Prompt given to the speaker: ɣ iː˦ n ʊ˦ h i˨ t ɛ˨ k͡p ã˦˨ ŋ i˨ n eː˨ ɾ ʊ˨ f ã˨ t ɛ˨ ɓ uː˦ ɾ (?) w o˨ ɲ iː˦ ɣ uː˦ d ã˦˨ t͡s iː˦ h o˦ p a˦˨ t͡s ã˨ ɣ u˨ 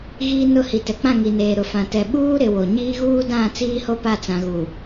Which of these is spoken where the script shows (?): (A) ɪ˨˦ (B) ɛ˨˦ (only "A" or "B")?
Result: A